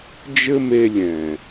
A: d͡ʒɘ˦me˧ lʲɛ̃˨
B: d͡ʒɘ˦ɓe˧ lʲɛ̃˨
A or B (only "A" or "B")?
A